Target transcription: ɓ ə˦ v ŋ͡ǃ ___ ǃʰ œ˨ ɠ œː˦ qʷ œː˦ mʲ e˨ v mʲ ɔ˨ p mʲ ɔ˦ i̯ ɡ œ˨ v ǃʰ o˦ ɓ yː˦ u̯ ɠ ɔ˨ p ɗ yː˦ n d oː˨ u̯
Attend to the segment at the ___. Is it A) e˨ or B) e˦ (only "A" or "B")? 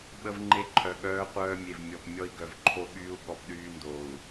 B